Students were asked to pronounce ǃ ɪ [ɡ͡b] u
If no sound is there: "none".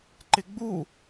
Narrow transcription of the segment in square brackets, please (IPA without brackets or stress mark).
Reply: ɡ͡b